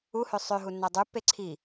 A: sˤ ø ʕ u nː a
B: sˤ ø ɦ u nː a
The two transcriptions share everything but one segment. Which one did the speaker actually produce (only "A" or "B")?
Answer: B